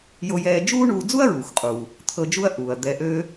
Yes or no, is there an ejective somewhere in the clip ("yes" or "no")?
yes